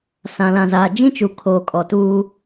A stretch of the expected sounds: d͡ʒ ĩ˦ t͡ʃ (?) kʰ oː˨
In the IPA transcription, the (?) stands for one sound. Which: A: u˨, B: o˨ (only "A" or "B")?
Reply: A